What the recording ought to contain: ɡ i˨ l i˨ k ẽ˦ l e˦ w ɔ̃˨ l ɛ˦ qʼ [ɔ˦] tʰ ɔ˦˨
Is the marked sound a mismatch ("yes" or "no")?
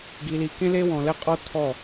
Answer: no